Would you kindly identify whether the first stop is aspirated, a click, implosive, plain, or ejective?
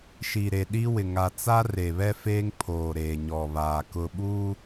implosive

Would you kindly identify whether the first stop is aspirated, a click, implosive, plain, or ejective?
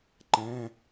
click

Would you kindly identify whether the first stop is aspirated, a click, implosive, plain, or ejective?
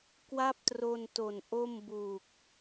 plain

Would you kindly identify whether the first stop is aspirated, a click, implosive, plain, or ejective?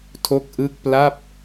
aspirated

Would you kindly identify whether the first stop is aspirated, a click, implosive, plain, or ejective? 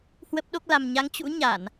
plain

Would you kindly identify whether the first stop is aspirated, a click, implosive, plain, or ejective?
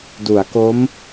plain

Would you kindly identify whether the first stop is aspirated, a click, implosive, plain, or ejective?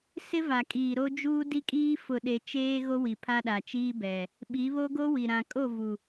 ejective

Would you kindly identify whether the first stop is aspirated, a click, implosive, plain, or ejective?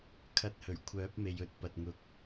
aspirated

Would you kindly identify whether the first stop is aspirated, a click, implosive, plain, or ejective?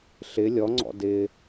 click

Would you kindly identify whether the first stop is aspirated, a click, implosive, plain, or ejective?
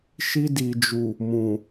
plain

